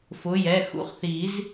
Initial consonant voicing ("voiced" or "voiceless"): voiceless